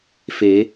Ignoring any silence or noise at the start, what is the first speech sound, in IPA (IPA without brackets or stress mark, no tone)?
f